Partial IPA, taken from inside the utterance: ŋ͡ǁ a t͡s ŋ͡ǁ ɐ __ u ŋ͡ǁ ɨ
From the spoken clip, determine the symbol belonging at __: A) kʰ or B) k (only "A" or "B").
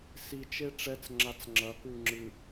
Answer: B